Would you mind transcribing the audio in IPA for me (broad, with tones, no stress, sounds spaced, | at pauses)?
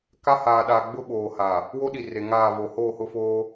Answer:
k a˦ h aː˨ ɗ aː˨ ɡ͡b ʊ˦ ɓ oː˨ h a˨ | w o˦ ɗ i˨ r e˨ ŋ aː˦˨ v o˨ h oː˦˨ h ʊ˦ f oː˦